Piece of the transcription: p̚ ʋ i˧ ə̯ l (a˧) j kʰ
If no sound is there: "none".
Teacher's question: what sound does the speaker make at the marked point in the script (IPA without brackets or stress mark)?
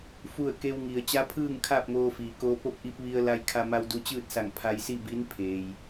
a˧